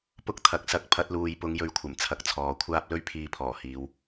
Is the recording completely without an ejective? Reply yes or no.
yes